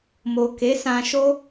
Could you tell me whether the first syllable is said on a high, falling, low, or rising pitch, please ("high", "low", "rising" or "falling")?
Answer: low